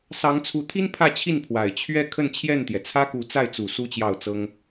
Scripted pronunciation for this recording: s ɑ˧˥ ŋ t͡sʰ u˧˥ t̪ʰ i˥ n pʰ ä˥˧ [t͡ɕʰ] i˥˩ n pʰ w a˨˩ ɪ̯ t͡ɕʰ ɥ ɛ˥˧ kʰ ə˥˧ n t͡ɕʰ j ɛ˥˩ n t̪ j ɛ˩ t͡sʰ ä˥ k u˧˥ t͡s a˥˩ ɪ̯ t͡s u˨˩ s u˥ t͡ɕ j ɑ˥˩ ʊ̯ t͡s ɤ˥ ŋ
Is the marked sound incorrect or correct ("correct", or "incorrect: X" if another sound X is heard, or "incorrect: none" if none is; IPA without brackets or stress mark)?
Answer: correct